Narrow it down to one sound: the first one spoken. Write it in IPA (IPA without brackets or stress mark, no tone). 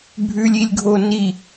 bʱ